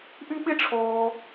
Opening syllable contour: high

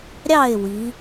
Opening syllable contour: falling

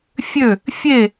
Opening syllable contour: falling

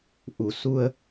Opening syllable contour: low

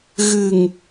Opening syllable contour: low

